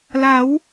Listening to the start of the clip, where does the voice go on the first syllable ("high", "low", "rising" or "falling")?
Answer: rising